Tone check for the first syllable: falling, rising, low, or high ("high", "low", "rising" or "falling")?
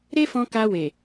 high